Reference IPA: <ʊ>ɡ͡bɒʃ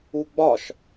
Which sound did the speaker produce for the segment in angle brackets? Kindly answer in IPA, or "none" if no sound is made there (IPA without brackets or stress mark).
u